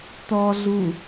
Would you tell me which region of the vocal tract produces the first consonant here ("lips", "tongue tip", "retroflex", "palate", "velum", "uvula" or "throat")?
tongue tip